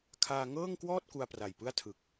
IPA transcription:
kʰ aː˧ ŋ ɤː˥˩ ŋ k w ɔː˥˩ t̚ k u˧ a̯ p r a˨˩ j p ɯ˥˩ a̯ tʰ ɯ˨˩ k̚

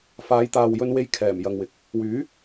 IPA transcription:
f aː˨˧ j t̪ aː˨ w j ɵ˧ n w e˥ j kʰ ɛː˨˩ m j ɐ˨ ŋ w ɪ˨˥ k̚ | w yː˨˥

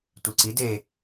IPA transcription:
tʷ e ǀ i d e

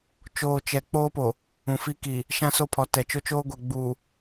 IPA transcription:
t͡ʃ oː˨ t͡ʃ ɛ˨ k͡p oː˦ p o˨ | ũ˨ f i˦ k i˨ | ʃ ã˦ s o˦ pʰ ɔ˨˦ t ɛ˨ t͡ʃ o˦ t͡ʃ oː˦ ɡʷ ɛ˨ ɡ͡b uː˨

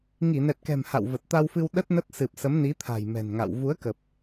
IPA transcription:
ŋ i˧˩ n ɛ˨˩ t̚ k ɛ̤˨˩ m h a̰˧˨ w v ə˨˩ t̚ t̪ a˧ w f ɨ˧ w ɗ ə˦˥ t̚ n ə˦˥ t̚ s ɨ˨˩ p̚ s ə˨˦ m n i˨˦ t̪ʰ a̤˨˩ j m ɛ̤˨˩ n ŋ a̰˧˨ w v u˨˦ ə̯ k ə˨˩ p̚

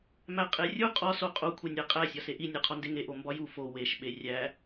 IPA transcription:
m æ qʼ e rʲ u qʼ ɒ s o qʼ o kʷʰ e nʲ æ qʼ æ sʲ ɒ s e ʔ i nʲ ɒ qʰ ɒ n d e ŋ e ʔ o m b ɒ j u f o w e ʃ ɓ e rʲ æ

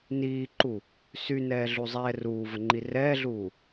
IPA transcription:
n iː ǃ u | s y n ɛː ɮ u zˤ ɛː r uː v ə ŋ͡ǃ i r ɛː ɮ uː

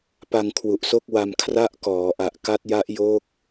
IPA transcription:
p a˧ ŋ kʰ w u˨˩ ʔ s o˥˩ k̚ w a˧ m kʰ r a˥˩ ʔ k ɔː˩˦ ʔ a˨˩ ʔ k a˦˥ t̚ j a˦˥ ʔ j o˦˥ k̚

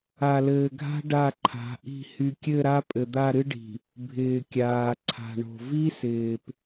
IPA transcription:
a˨ l ɘː˨ ɡʱ a̤˦ ɖ a˦˨ ǃʰ a̤˨˦ ʔ i̤˦˨ h y˨ kʲ ɘ˦˨ ɾ a˦ pʼ ɘ˨ d̪ a˦˨ ɾ ɨ˦ ɖ i̤˨ | bʱ ɪː˨ kʲ aː˨ ǀʰ a̤˨ ɳ o̤˨ v i˦ s ɪː˨ p

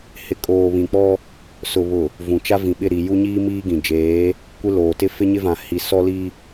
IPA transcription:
h ɪ˨ kʼ oː˨ β ĩ˨ k͡p ɔ˦ | s ʊ˨ β ʊ˨ | v ũ˨ t͡ʃ a˦ v ĩ˨ ɓ ɪ˦˨ ɾ i˨ j u˦ ɲ iː˦ m iː˦ ɡ ĩ˨ d͡ʒ eː˨˦ | kʷ ɪ˦ l oː˨ t ɪ˦ f ɪ˦ ɲ ɪ˦ v ã˨ h i˨ s ɔ˦ l i˦

